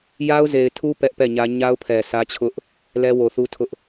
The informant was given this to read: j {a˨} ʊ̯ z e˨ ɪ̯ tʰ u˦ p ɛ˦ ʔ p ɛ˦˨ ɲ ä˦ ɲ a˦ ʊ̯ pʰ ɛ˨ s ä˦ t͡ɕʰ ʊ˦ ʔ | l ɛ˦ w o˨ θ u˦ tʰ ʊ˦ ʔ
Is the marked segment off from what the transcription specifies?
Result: yes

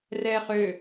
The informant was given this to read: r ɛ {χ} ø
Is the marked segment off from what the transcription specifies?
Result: no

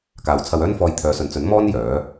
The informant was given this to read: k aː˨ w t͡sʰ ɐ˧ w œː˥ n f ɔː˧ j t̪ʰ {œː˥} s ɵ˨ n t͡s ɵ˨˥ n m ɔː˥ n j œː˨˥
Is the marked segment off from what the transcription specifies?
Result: yes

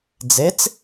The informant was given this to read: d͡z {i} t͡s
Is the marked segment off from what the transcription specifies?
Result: yes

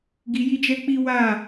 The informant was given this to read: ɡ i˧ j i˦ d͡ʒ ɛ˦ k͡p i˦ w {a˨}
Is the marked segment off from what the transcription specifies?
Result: yes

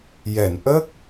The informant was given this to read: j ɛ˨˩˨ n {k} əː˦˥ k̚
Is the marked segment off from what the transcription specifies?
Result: yes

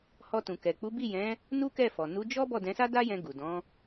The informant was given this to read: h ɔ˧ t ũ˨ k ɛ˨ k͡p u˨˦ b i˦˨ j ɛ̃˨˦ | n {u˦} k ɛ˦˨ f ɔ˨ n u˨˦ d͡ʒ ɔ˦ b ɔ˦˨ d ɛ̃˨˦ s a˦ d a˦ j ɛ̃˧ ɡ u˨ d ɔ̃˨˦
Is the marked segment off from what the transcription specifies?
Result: no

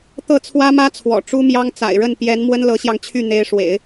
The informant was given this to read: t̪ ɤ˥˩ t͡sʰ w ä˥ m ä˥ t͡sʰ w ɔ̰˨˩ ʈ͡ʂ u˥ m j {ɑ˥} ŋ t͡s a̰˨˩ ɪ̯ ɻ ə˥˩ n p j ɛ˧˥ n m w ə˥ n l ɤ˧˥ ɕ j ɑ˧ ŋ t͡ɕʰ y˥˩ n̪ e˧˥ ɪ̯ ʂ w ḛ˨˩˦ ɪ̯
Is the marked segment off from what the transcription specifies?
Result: no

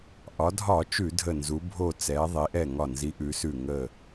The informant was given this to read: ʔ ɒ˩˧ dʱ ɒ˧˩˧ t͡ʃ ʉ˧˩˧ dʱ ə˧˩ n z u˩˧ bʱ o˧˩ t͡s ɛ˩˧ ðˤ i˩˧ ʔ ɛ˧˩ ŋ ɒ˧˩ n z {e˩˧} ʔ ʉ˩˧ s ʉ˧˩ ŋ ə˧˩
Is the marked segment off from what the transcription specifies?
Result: yes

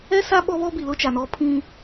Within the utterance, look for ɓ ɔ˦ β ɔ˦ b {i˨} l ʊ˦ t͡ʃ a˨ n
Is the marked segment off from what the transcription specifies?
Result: no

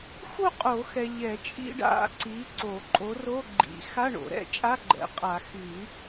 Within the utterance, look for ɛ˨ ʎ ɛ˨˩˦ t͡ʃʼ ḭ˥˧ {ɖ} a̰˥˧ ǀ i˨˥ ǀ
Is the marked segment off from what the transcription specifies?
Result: no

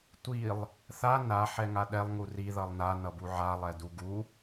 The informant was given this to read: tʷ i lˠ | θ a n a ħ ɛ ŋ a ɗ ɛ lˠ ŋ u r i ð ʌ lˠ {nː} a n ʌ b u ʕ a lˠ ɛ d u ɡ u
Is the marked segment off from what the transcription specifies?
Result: yes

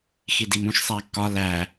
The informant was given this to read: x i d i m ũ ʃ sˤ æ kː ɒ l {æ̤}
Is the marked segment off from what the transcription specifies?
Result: yes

